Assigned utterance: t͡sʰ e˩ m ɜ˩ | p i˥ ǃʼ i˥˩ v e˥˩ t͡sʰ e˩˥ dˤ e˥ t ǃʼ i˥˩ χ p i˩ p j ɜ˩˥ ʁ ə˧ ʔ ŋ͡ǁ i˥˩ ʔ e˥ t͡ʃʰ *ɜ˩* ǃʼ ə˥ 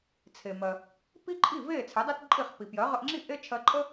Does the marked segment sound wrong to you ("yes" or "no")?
yes